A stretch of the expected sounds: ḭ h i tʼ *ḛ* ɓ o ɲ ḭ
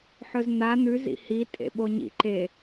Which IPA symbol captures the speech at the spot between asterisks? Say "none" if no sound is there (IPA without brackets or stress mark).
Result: ḛ